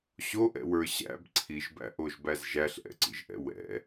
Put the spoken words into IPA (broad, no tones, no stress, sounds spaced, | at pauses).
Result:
ɕ o ʔ ɛ̰ w ə˞ ɕ æ̰ b ǀʰ i ʒ b æ̰ ʔ o ʒ b æ z ʒ æ ɬ ʔ ɛ̰ ǀ ḭ ʒ ʔ ɛ̰ w ɛ̰